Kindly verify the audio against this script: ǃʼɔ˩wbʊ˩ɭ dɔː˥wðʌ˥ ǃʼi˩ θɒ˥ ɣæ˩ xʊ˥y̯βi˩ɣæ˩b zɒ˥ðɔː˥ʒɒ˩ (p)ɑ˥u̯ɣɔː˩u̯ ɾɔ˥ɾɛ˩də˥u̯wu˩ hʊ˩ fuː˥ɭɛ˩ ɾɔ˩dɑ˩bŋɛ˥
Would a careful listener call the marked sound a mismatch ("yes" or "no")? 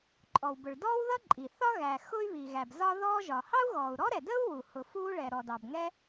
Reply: yes